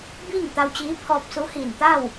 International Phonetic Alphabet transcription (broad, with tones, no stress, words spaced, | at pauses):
biː˥˨ŋt̪a˧wt͡ɕiː˧˥ pʰɔː˧p̚su˧˥hiː˧˩n t̪a˥˨w